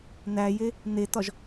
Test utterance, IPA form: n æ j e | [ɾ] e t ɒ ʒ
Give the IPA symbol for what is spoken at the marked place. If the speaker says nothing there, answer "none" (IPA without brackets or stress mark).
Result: n